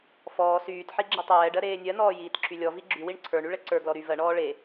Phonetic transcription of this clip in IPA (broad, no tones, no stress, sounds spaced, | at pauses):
f ɔː s yː t ħ i ɡ͡ǁ i tˤ ɛː ɖ ɜ ɾ eː nʲ ɜ n ɔː j iː t ǁʰ y lʲ ɔ v i ɡ͡ǁ y w i ɳ ǀʰ ə˞ ɳ y ɭ ɛ ǀ ə˞ ɡ l ɔ ɾ y v ɜ ɳ ɔː ɭ e